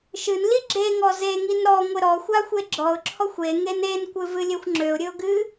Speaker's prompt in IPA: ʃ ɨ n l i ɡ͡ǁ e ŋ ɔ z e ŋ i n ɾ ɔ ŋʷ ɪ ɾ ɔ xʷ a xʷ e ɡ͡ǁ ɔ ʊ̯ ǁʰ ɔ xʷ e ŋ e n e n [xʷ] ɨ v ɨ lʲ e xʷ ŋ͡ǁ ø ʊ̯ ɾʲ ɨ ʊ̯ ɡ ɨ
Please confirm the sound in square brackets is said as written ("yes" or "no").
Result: no